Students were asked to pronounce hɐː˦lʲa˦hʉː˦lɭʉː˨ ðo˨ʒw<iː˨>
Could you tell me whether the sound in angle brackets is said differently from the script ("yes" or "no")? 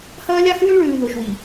yes